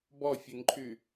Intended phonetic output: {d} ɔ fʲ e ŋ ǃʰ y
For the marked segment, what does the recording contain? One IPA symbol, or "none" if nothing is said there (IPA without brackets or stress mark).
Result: b